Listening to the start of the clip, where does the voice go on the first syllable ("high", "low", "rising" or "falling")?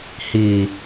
low